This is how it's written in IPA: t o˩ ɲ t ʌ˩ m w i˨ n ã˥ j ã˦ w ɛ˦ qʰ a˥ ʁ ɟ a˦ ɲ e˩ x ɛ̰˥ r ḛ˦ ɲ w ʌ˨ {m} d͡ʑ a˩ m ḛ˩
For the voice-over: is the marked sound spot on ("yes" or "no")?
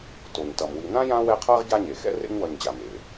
no